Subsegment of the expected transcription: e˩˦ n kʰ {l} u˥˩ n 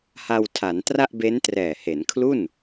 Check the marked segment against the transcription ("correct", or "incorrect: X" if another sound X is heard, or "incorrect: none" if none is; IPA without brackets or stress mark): correct